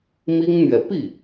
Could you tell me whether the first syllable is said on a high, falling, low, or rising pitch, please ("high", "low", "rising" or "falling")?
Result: high